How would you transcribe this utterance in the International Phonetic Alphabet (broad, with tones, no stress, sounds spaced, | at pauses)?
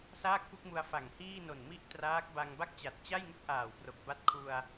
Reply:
s aː˥˩ k̚ p u˥˩ k̚ m u˧ a̯ f a˨˩ ŋ h iː˥˩ n o˨˩ n m i˥˩ ʔ t r aː˦˥ k̚ b a˧ ŋ b a˥˩ k̚ t͡ɕ a˨˩ t̚ t͡ɕ a˥˩ j ŋ u˥˩ k̚ ʔ aː˨˩ w p r o˨˩ k̚ b a˦˥ t̚ kʰ u˧ a̯